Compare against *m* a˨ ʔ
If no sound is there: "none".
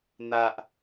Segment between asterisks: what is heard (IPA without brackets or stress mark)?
n̪